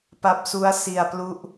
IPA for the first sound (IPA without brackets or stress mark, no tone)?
p